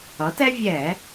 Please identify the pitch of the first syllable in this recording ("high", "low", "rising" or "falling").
rising